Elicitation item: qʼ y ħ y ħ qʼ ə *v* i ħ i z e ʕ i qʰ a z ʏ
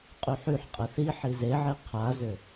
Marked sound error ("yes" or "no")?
yes